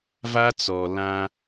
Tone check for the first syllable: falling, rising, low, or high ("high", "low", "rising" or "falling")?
high